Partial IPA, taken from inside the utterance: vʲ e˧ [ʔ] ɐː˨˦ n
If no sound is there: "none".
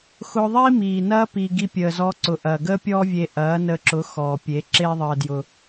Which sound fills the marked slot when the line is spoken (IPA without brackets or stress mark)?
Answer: ʔ